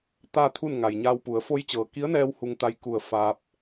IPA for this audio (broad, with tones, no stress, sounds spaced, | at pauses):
t̪ aː˥˨ t̪ʰ u˥˨ n ŋ a˩ j ɲ aː˧ w p u˩˧ ə̯ f o˧ j t͡ɕ ɤː˩ k i˧˥ ə̯ n ɛː˧ w h u˧ ŋ t̪ a˧ j k u˧˩ ə̯ f aː˧ p̚